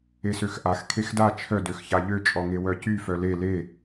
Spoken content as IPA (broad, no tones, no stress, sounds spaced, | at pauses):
e s ø x ʔ a x kʰ e x d a t͡ʃʰ œ d ø x ç a ʎ ø t͡ʃʼ ɔ ŋ e w œ c y f œ l e l e